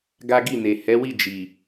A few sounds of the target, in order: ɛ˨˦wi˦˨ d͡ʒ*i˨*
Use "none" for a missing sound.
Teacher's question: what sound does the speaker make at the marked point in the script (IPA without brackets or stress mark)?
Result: i˨